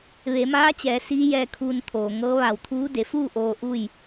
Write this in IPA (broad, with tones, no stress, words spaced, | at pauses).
ʋe˩˧maː˧˥t͡ɕɛː˩˧ siː˧˥jɛː˧kʰuː˧n t̪ʰoː˩ŋɤː˧˥ ʋa˧˩wt̪ʰuː˧˥ de˩˧fuː˥˨ ʔoː˧ʔu˥˨j